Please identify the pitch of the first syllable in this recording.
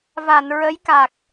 low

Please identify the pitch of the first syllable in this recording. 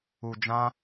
low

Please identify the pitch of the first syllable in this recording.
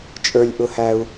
high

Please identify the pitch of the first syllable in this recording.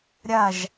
falling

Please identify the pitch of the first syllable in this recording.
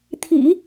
low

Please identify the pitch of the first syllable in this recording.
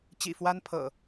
low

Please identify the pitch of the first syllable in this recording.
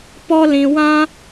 high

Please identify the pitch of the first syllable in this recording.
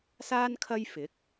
high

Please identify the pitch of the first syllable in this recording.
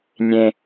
low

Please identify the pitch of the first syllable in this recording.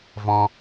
high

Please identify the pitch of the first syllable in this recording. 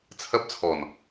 high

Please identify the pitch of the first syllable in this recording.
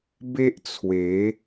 high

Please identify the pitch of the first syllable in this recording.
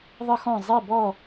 high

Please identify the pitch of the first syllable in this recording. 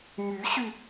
rising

